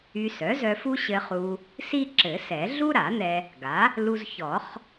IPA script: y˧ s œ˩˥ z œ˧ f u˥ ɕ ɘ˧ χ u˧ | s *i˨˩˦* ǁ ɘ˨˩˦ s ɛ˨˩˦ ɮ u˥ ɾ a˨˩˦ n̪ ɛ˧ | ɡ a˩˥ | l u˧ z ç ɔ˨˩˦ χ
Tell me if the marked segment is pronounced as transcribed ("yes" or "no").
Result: no